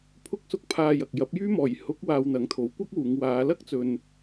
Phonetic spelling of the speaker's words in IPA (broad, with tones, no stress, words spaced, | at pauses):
pʰʊ˧k̚sʊ˧k̚ pʰaː˨j ɐ˨k̚jɐ˨˥p̚jyː˥ mɔː˨˩jhʊ˨˥k̚ waː˧wn̪ɐ˨˥ŋ t̪ʰo˨˥wkʷɐ˥k̚wuː˨˧ŋ waː˨˧lɐ˥k̚ t͡sɵ˧n